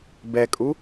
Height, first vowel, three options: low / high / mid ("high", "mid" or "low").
mid